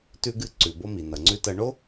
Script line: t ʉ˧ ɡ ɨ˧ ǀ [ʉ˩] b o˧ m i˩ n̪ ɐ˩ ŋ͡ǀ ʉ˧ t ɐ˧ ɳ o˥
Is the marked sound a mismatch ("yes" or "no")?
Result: no